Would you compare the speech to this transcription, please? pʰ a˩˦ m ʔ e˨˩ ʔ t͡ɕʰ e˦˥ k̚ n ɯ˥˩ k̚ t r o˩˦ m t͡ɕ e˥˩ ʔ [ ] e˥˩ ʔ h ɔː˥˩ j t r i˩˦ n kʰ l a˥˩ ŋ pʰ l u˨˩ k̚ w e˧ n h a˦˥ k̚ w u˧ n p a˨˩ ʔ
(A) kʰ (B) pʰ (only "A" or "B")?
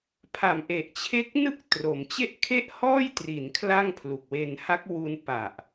A